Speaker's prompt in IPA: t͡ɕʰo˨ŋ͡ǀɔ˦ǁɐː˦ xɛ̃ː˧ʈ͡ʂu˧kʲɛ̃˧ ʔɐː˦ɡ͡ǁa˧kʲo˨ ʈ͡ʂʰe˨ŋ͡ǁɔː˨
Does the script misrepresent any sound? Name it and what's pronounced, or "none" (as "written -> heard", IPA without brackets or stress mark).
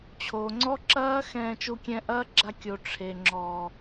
ʈ͡ʂ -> t͡ʃ